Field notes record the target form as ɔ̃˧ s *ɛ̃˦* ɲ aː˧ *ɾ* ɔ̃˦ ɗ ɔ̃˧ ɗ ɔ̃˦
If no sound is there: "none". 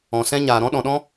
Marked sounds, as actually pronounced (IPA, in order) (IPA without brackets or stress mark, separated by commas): ɛ̃˦, ɾ